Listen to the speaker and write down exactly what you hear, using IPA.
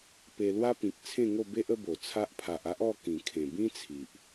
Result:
p e˧ l w a˦ p ĩ˨ k̚ t͡sʰ ẽ˥˧ ŋ o˥˧ b e˦ ʔ ə˦ b o˨˩ t͡sʰ a˦ ʔ pʰ a˨ ʔ a˦ ʔ ɔ˥˧ k ĩ˨˩ kʰ ẽ˨˩ b ĩ˦ t͡sʰ i˨ ʔ

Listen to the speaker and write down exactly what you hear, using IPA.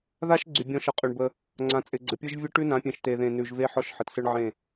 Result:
ð a˦ ʃ ɡ͡ǀ y˨ bʲ ɔ̃˦ ʃ ə˨ qʼ y˨ ɳ b ə˦ | ŋ͡ǀ ã˨ t͡sʼ ɪ˨ ɡ͡ǀ ə˨ pʲ ɯ˦ ʒ vʲ ɯ˦ ʈ ʉ˦ n ã˨˦ pʲ ẽ˨ ʃ t e˨ ð ẽ˨ n ʉ˨ ʒ v e˦ ħ ɔ˦ ʃ ħ ə˨ t s ɯ˦ ɳ ʕ ẽ˦˨

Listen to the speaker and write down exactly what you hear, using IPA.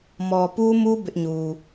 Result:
m ɔ˨ p u˦ m u˦ b ɪ˦ ʔ ɲ u˨

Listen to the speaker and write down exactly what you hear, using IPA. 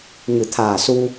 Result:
ŋ ɨ˨˩˨ t̪ʰ aː˨˩ s u˧

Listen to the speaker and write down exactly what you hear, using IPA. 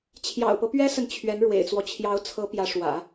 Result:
t͡ɕʰ j ɑ̰˨˩ ʊ̯ p ɤ˦ p ɥ ɛ˥ s ə˨ n t͡ɕʰ ɥ ɛ˧˥ n ɻ w ḛ˨˩ ɪ̯ t͡s w ɔ˦ t͡ɕʰ j ɑ˧˥ ʊ̯ t͡sʰ ɤ˧˥ p j ä˧˥ ʂ w ä̰˨˩˦

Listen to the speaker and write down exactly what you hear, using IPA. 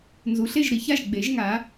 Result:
n z u˩˧ ɬ e˥˩ ʒ ɾ i˩˧ ç a˥˩ ʒ ɡ͡b e˩˧ ʒ ŋ a˩˧

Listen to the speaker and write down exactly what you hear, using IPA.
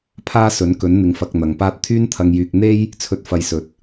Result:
pʰ aː˥ s ɵ˨˥ n k ɵ˨˥ n n̪ ɪ˨ ŋ f ɐ˧ k̚ n̪ ɐ˨ ŋ p aː˥ t̚ t̪ʰ yː˥ n t̪ʰ ɐ˧ ŋ j yː˧ k̚ n̪ e˥ j | t͡sʰ ɵ˧ t̚ f ɐ˧ j s ɵ˨ t̚

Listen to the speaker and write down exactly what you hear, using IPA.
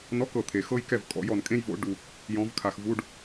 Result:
n ɔ˧˥˧ k ɤ˨ t̪ʰ e˨ x ɤ˥ j k ɛ˥˩ v kʼ ɔ̰˨˦ j ɔ˨ n kʼ ẽ˥ j v o̰˨˦ ɖ u˨ | j ɔ̃˨˦ v kʰ a˨ x v u˧˥˧ ɖ

